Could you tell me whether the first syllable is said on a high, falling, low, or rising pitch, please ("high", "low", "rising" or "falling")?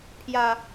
low